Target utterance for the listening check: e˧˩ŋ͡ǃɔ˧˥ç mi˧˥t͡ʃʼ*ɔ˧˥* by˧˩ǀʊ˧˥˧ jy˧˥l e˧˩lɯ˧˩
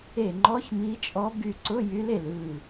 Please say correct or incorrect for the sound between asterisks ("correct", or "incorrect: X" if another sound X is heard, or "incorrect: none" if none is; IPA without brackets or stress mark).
correct